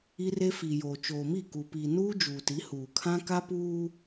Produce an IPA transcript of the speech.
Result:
i˦ r e˦ f iː˨ j oː˨ t͡ʃ oː˨ m i˦˨ k u˨ p iː˨ n uː˦ d͡ʒ uː˨ t i˨˦ h uː˨ kʰ ã˦ k a˦ p uː˦

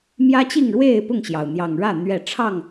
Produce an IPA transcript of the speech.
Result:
m j ä˦ t͡ɕ i˥˨ ŋ ɻ w e˥˨ ɪ̯ p ʊ˥˨ ŋ ɕ j ɑ˩ ʊ̯ n̪ j ɑ˨˩ ŋ ɻ ä˥˨ n̪ ɥ ɛ˥˨ ʈ͡ʂʰ ɑ˥˨ ŋ

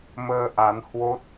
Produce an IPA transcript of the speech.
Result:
m əː˧ ʔ a˨˦ n h w o˦˥ t̚

